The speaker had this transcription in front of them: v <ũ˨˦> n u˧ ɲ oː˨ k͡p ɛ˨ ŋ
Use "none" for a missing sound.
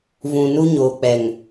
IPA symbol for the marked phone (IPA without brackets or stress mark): ũ˨